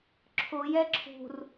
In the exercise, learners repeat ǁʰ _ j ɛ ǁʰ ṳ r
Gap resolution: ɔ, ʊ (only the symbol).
ʊ